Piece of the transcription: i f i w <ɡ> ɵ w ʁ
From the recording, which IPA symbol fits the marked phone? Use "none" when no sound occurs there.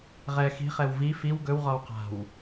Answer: ɡ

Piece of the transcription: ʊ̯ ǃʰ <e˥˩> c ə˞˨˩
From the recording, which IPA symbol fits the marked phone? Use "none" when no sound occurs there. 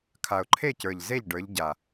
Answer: e˥˩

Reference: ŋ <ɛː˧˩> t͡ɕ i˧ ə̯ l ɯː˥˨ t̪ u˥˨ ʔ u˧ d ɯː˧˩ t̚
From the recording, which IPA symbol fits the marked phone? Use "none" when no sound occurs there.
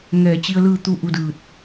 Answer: ɛː˧˩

